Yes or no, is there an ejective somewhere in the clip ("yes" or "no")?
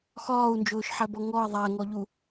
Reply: no